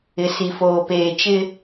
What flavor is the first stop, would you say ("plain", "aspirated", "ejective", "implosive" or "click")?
plain